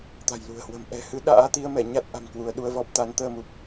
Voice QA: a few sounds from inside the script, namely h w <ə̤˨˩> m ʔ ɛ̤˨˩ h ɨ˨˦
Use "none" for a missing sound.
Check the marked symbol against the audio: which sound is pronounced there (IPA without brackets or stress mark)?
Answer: ə̤˨˩